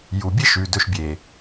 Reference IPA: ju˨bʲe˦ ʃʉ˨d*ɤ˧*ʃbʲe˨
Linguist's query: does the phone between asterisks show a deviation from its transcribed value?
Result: yes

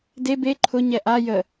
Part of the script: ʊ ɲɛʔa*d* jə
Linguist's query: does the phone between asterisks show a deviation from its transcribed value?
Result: yes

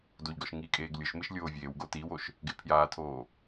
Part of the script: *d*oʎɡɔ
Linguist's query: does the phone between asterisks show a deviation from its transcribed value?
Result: no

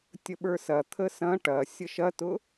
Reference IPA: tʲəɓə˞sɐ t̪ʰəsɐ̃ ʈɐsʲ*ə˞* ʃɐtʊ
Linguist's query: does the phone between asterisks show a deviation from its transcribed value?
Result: yes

